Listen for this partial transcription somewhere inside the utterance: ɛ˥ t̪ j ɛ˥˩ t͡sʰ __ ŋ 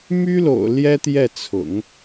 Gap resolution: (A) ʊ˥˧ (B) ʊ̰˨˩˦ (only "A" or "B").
B